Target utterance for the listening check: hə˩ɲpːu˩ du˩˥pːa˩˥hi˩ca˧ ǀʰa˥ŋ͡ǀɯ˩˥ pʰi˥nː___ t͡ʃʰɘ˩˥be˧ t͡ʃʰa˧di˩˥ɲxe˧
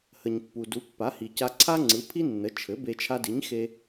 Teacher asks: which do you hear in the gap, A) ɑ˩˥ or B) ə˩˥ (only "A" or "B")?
B